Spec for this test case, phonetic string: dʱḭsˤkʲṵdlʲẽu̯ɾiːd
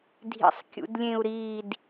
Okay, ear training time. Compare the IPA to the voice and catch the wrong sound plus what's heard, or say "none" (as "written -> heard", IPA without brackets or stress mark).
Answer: none